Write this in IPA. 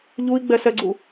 ʎui̯ɡ͡bɛsɛɡ͡ǀu

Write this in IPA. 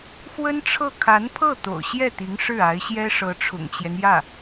xwə˥nʈ͡ʂʰɤ˥˩ kʰa˧˥npʰɤ˥˩ t̪o̰˨˩ʊ̯ɕjɛ˥˩t̪i˧˥ŋ ʂɻ̩˥˩a˧˥ɪ̯ɕjɛ˥ ʂɤ˧˥ʈ͡ʂʰʊ̰˨˩ŋt͡ɕjɛ˦njä˥˩

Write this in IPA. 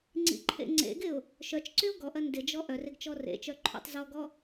ŋ͡ǀḭǃʰḛŋ͡ǀḛɡɪʊ̯ | ʃœt͡ʃǀyʊ̯ ɡɔʔɐ ndɪd͡ʒɔ ʔœrɪɡ t͡ʃɔrḛt͡ʃœ ǃʰɔ̰tˤzɔɡɔ

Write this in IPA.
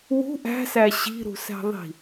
wṳ ʔæ̤sæ ɕi̤ɾṳsæ̤ðˤi̤

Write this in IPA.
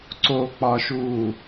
ǀok͡pɒʃuː

